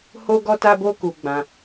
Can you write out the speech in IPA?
h o˦ ɡ ɔ˦ t a˦ b o˦ k u˧ ɡ͡b ã˧

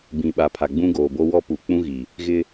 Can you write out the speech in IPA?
b ĩ˨ ɓ a˨ pʰ a˨ ɡ͡b ũ˦ ɡ oː˨ b o˦ w ɔ˦ p u˨˦ k͡p ũ˦ ɣ i˨ | ɣ ɪ˦

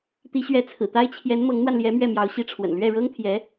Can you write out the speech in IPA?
t̪ i˧˥ ɕ ɥ ɛ˧˥ t͡sʰ ɹ̩˨˩ t̪ a˥ ɪ̯ t͡ɕʰ j ɛ˧˥ n m ɤ˧˥ ŋ n̪ w a˧ n l j ɛ˧˥ m ɥ ɛ˥˩ m j ɑ˧˥ ʊ̯ ɕ i˧˥ ʈ͡ʂʰ w ə̰˨˩ n l ɥ ɛ˥˩ ɻ ɤ˥ ŋ t̪ʰ j ɛ˧˥

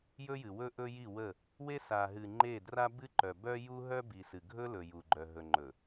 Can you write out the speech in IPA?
j ɵ˦ j ɨ˨ w ɵ˦ ʔ ɵ˦ j i˦˨ w ə˦˨ | w e˦ s a˨ ɦ ɨ˨ ŋ͡ǃ e˦˨ d r a˦ b ɨ˦ ǃ œ˨ b œ˦ j u˦ ɦ œ˦ b i˨ s ɨ˨ ɡʱ ɵ˦ l ɵ˨ j u˨ ɡ͡ǃ œ˨ ɦ ɵ˨ ŋ͡ǃ ɵ˨

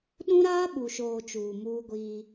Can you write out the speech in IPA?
ɗ ũ˦ ɾ aː˦ ɓ u˨ ʃ oː˨ t͡ʃ uː˨ m uː˦ ɡʷ iː˦

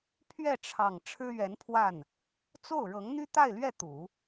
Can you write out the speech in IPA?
pʰ ɥ ɛ˥˩ ʈ͡ʂʰ ɑ˨˩ ŋ ʈ͡ʂʰ ɻ̩˥ ɥ ɛ˧˥ n pʰ w a˥˩ n | t͡s o˥˩ ʊ̯ ɻ ɤ˧˥ ŋ n̪ y˥ t̪ a˥˧ ɪ̯ l ɥ ɛ˥˩ t̪ u˨˩˦

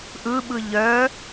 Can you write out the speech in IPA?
ʔ ɯ ɓ ɯ ʎ œ

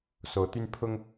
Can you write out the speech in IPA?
s o˧˥ ʊ̯ t̪ y˥ n pʰ ʊ˥ ŋ

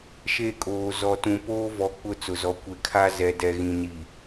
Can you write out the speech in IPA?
ʃ e˦˨ kʼ oː˨ z ɔ˨ t ũ˨ p oː˦ v ɔ˨ k͡p ʊ˦˨ t͡s ʊ˨ z ɔ˨ kʷ e˨ kʰ a˦ z ɛ˨ d ɛ˨ ɣ ĩ˨ n i˨

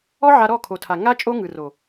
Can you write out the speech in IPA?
ɔ˦ ʕ a˧ ɾ ɔ˦˨ kʰ o˨ tʰ a˨ ŋ a˦ t͡ʃʼ o˦ ŋ ɯ˨ r o˨

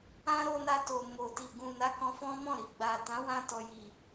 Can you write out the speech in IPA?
ã˦ ɾ o˧ n a˧ t o˨ m o˨ t i˨ ɡ ũ˨ n a˨˦ k ɔ̃˧ f ɔ̃˦ m ɔ̃˦˨ ɾ i˨ ɡ͡b a˨ t ã˨˦ w ã˧ t ɔ˨ j i˨

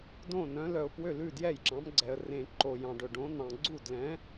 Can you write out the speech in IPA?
d õ˥˩ n œ̃˨˥ l œ˨ ʊ̯ p w ø˥˩ l ʉ˥˩ d j ɛ˥˩ j ǁ ɑ̃˨˥ m ɡ͡ǀ ɛ˨ ə̯ r ẽ˨ ǃ o˨ j ɑ̃˨ ɖ ɵ˨ ɖ õ˨˥ n̪ ɑ̃˨ ɡ͡ǀ u˥˩ d l ɛ̃˨˥

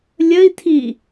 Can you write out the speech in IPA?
lʲ ə i̯ tʰ i

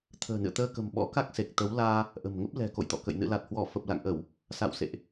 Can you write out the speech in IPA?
t̪ʰ ə̤ː˨˩ n ɨ̰˧˨ ə̯ t̪ əː˧ k ə̤˨˩ m ɓ ɔ̰˧˥ k a˦˥ k̚ s e˨˩ k̚ t̪ ə˨˦ w l aː˧ | ʔ ə̤˨˩ m ŋ ə˦˥ p̚ l ɛ̤˨˩ k o̰˧˨ j t̪ ɔ̰˧˨ k ə̰˧˨ j n ɨ̰˧˨ l a˨˩ t̚ h w ɔ˧˩ f ə˨˩ p̚ l a̰˧˨ ŋ ʔ ə˧˩˨ w | s a̰˧˨ w s ḛ˧˨ ʔ

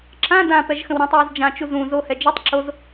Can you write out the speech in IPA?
ǁ ã d ã p ɛ ʒ x ə̃ w ɾ ɛ̃ tˤ w ɛ z d͡ʒ ã t͡ʃ u z ũ z o h ɛ d͡ʒ o tˤ ǁ o z

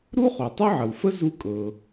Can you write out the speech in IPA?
ɾ u˥ χ o˩ tˤ ø˥ ʕ ə˩ w f ə˥ z u˧ kʼ ɤ˩

